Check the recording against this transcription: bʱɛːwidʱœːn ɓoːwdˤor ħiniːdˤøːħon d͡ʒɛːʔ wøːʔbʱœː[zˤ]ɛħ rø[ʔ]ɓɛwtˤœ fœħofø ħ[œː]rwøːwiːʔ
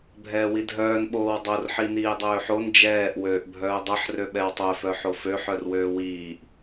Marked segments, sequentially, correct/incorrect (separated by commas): incorrect, incorrect, incorrect